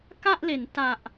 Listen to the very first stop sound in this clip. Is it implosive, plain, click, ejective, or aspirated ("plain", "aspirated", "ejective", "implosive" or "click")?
plain